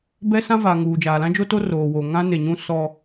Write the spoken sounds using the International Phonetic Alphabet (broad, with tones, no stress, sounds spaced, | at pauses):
b ɛ˦ s ã˦ v aː˨ ŋ uː˨ d͡ʒ aː˨ l ã˦ d͡ʒ o˦ t o˦ r oː˨ w oː˨ ŋ ã˦ n e˨ ɲ ũ˦ s ɔ˦